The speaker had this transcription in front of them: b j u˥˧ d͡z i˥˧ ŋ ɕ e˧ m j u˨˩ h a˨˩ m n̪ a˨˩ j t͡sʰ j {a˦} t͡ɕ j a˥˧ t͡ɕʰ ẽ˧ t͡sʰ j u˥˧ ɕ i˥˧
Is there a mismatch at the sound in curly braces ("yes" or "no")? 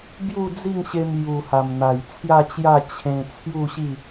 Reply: yes